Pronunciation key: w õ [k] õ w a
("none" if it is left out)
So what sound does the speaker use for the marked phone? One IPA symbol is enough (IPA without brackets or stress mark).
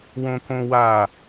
k